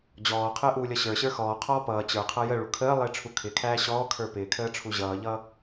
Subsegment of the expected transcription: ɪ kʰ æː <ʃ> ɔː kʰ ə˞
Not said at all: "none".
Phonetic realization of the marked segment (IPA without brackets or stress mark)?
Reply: ɕ